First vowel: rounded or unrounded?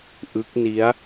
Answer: unrounded